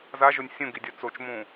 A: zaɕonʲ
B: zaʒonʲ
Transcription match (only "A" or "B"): B